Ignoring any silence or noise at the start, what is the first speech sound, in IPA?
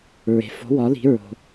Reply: ɹ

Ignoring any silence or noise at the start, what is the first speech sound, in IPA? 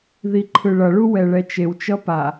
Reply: ð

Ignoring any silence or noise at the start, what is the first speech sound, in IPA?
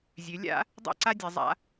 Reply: zʲ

